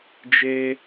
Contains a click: no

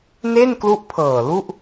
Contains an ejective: no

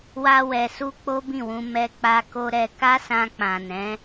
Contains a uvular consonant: no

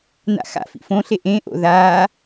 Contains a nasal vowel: yes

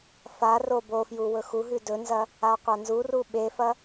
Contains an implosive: yes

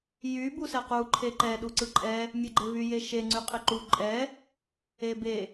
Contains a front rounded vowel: yes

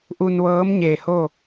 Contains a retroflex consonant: no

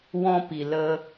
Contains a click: no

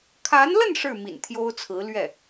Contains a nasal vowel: no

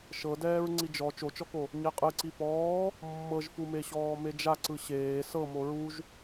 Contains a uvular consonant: yes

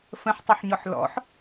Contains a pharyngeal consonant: yes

